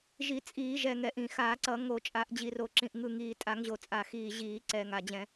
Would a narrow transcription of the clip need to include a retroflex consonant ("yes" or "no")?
no